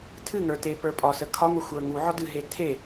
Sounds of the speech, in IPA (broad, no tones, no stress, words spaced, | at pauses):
tʰɨŋə˞te pə˞pʼɒsə kʰɒŋʷə xʷə˞ŋuʕɒ dɨɦe tʰe